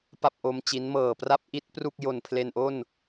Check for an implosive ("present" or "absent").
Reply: absent